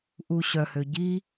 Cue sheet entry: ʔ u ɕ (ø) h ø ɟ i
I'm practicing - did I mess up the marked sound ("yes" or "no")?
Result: yes